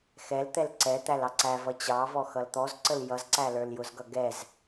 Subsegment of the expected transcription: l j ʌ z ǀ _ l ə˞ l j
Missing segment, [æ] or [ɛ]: æ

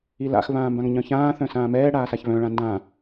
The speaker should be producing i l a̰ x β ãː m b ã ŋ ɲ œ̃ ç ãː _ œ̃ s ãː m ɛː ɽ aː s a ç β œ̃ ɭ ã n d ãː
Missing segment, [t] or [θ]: θ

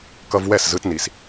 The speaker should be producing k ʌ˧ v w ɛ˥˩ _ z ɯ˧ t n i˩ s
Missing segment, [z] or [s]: s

